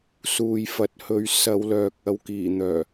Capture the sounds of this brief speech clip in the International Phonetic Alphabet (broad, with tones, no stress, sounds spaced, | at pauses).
s uː˨ j f ɐ˨˥ t̚ h ɵ˨˧ ɥ s ɐ˨˧ w l œː˨ k̚ ɐ˨˧ w k iː˨˩ n̪ œː˨˩